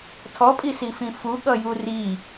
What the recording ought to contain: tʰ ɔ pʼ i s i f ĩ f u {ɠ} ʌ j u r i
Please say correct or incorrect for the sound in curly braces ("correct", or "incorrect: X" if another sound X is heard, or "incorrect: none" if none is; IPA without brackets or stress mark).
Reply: correct